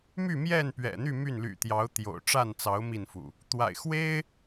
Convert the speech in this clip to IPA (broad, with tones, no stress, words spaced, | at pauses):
my˥˨mjɛ˥˨n pɥɛ̰˨˩n̪y˥˨ my˥˨nly̰˨˩t̪jɑ˨˦ʊ̯ t̪jo̰˨˩ʊ̯ ʈ͡ʂa˥˨nt͡sɑ˨˦ʊ̯ mi˥˨nfṵ˨˩ | t̪wa̰˨˩ɪ̯ xwe˦ɪ̯